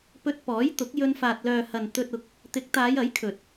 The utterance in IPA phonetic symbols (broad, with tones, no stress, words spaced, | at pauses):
pɵ˧t̚pɔː˨˥jt̪ʊ˨˥k̚ jɵ˧nfaː˨t̚lœː˨hɐ˨n t̪ɵ˧t̚ʊ˨˥k̚ | t̪ɪ˨˥k̚t̪aː˨˧j ɐ˨˥jkʰɵ˨t̚